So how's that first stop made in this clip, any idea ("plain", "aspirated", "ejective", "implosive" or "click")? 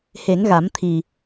aspirated